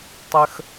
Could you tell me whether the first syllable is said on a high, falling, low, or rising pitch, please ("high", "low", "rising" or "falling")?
high